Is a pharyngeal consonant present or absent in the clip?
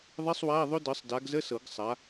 absent